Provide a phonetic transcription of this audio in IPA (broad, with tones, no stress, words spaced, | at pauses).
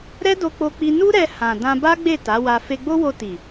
ɾɛ˦do˧k͡po˧k͡pi˧ nu˦ɾɛ˧ hã˨ dã˧ba˦ɡ͡be˦˨ ta˨˦wa˧ fe˧ɡ͡bo˦wo˧ti˨